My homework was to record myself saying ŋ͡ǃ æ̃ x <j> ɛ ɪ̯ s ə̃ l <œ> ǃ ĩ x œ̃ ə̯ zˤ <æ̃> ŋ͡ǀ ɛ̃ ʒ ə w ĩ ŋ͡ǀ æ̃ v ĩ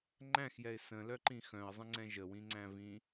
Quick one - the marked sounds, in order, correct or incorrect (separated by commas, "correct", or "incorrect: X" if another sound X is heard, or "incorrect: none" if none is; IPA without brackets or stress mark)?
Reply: correct, correct, incorrect: ə̃